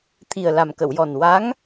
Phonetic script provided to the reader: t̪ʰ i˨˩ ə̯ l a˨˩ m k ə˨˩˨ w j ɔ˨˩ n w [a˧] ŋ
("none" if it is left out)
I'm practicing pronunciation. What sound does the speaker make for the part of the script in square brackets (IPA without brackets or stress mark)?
a˧˥